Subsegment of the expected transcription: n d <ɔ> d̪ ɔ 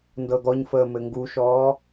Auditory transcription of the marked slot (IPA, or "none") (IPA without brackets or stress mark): ɤ